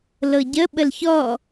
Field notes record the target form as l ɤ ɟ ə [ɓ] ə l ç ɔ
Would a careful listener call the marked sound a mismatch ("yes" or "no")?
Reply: no